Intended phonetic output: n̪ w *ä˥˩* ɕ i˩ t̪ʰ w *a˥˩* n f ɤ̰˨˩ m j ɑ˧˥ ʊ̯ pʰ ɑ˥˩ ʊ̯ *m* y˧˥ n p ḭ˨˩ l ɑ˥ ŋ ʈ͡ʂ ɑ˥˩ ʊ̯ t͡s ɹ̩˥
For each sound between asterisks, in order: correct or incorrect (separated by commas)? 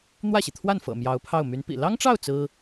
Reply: correct, correct, correct